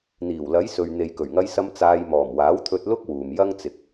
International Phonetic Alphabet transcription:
n̪ iː˨˩ w l ɐ˨˥ j s ɵ˨ ɥ n̪ e˨ j k ɵ˨˩ ɥ ŋ ɐ˧ j s ɐ˧ m t͡s aː˧ j m ɔː˨˩ m w aː˨˥ w t̪ʰ ɵ˧ t̚ l ʊ˥ k̚ w uː˨ m j ɐ˥ ŋ t͡s ɪ˨ k̚

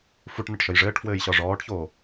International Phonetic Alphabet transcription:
f u ʈ n ə ʈ ʃ ə j ʐ ɘː ʈ f w ɘː j ɕ ɒ ʐ ɔː ʈ ç oː

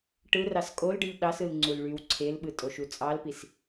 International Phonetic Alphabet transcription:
ʈ ɯ r ɑ s kʼ o l ɖ ɯ ʎ ɗ ɑ s ɯ l ŋ͡ǀ u l ɭ y w ǀʰ e l ɓ ɯ tʼ o ʃ u t͡sʼ ɑ l p i s

